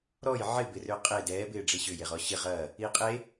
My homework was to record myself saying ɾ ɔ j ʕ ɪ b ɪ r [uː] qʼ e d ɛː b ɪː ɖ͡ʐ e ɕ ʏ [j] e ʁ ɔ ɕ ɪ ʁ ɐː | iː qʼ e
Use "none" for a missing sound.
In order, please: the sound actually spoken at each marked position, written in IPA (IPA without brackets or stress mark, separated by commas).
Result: ʏː, j